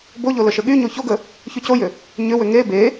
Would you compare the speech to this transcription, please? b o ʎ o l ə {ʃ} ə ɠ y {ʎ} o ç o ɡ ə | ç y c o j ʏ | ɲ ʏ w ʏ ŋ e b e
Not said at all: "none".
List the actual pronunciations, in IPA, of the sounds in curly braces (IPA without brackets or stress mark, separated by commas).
ʃ, ɲ